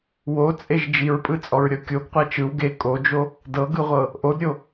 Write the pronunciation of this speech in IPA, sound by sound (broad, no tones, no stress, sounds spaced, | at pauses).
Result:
w o t͡sʼ e ʒ d͡ʒ i ɹ pʼ ɯ t͡sʼ ɔ ɹ ɾʲ ɔ kʲ o ɡ qʷ ɛ t͡ʃ ɯ w ɡ e kʼ o d͡ʒ o | d ɤ ɡ ɯ ʁʷ ɤ | ʔ o d ɾʲ o